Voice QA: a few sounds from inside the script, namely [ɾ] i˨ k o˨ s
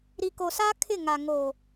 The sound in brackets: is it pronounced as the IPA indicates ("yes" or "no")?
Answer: yes